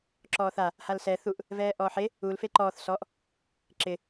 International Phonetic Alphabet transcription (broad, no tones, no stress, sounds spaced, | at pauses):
ǁ ɔː θ a | h a l s ɛ θ u ʔ | v ɛː ʔ ɔː ħ e | u l f e ǃ ɔː θ s ɔ ʔ | ǁ ɪ